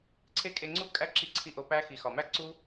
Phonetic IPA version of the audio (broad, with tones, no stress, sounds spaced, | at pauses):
ǀʰ e˦ kʼ e˧ ŋ͡ǀ u˦ kʼ æ˦ ǁ i˧ ǀʰ i˧ ʔ o˧ p æ˦ x i˨ x ɒ˨ m æ˦ ǀ u˦